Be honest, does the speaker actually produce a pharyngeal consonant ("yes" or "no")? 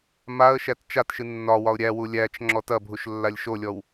no